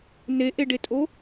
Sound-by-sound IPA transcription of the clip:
neʔeɖetʼo

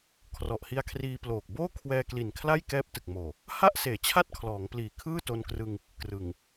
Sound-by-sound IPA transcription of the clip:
kʰrɔ˨˩ʔhi˧a̯kʰriː˧ploː˨˩k̚ boː˥˩kʰwɛː˧kli˨˩n kʰla˥˩jkɛː˦˥p̚ tɯ˨˩k̚moː˨˩ | ha˥˩ʔ seː˨˩t͡ɕʰa˥˩t̚kʰlɔː˩˦ŋpliː˨˩ kʰɯː˥˩to˧nkrɯ˧ŋ | krɯ˨˩ŋ

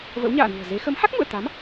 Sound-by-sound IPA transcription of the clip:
və̰˧˥wɲa̰ː˧˨nṳ˨˩ə̯ze˨˦ xə˨˦mha˦˥k̚ŋṵ˧˨ə̯t̪a˨˦m

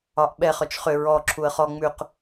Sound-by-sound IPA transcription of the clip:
ɒʔɓɛ χœt͡ʃχʏ ɹɔ ǁʰuə̯χɔ ŋ͡mʉq

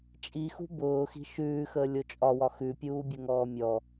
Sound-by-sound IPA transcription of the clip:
t͡ʃʼixṳ bʊːxi̤ ʃʉːxəː lʲot͡ʃʼɒwɒ xʉpʲuː bʲʊŋɔːmʲɔ

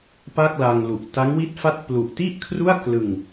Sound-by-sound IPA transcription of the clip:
pa˥˩k̚la˧ŋ lu˨˩ʔ ta˦˥ŋwi˥˩t̚fa˥˩t̚ plu˨˩ʔti˥˩ʔkʰru˥˩a̯ klɯ˧ŋ

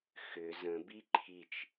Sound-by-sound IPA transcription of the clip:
xʏ zə̃ biǃʰit͡ʃ

